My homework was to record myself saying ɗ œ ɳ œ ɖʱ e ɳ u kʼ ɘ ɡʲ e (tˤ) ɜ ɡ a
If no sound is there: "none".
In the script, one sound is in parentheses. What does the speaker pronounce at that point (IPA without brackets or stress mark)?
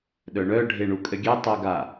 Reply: tˤ